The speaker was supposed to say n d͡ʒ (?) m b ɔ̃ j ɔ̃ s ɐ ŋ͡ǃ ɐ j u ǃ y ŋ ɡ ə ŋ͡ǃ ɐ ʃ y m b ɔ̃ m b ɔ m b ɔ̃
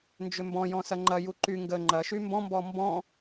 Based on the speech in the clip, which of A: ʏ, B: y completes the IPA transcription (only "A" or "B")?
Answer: A